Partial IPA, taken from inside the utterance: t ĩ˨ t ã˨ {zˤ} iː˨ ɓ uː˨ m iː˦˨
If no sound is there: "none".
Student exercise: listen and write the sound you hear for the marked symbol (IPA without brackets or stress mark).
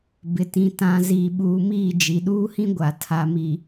z